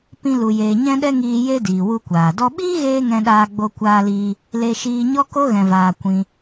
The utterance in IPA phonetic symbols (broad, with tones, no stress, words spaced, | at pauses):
pĩ˧ lu˧jeː˧ ɲɛ̃˦ɗɛ˦ŋiː˧ je˦diː˨ wu˧kʷaː˨dɔ˦ ɓiː˦ɣeː˧ ŋɛ̃˧ɗaː˧ɡ͡bo˧ kʷaː˧liː˧ | le˧ʃiː˧ ɲɔ˦ko˦ ɣɛ̃˧vaː˧ kʷĩ˧